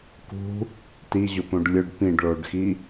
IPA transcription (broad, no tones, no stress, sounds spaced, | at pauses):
k ṳ | t i ʑ ʊ p õ ɖ lʲ ʊ ɖ p ĩ ɖ ɭ o ɖ x i